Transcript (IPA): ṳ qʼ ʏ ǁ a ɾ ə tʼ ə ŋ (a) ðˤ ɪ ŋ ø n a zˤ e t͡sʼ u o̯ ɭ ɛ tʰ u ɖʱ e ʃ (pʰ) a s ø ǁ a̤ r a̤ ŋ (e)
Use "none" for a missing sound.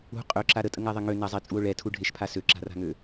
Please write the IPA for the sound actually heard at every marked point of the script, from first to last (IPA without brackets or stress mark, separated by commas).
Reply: a, pʰ, ø